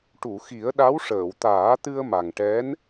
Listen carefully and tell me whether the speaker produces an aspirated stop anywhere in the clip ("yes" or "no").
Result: no